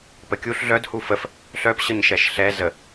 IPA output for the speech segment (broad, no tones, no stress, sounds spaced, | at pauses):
p ə kʲ u ɬ ɮ œ d h u f ə f | ɬ œ p ɕ ə ɲ ʃ ɛ ʃ ɬ ɛ z ə